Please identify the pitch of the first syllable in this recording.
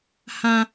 high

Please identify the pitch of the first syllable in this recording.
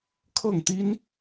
falling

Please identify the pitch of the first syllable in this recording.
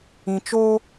low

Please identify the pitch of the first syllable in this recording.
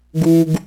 high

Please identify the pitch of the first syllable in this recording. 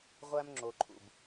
high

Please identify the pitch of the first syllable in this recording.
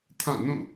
falling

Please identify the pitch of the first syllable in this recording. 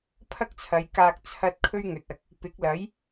high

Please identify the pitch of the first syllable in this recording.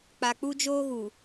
low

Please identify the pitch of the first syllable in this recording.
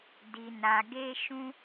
low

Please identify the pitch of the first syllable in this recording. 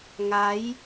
rising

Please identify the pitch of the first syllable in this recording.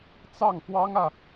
falling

